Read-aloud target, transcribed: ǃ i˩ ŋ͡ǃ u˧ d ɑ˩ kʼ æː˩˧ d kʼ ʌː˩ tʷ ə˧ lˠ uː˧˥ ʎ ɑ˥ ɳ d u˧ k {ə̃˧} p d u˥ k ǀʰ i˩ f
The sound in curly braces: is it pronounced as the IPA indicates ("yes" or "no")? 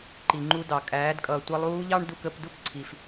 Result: no